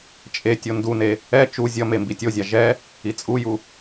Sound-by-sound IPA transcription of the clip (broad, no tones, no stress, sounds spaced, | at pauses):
t͡ʃʼ e tʲ o n d u n e | ɛ t͡ʃ u zʲ ʌ m e m b i tʲ o zʲ a ʒ ɛ | i t͡sʼ u j u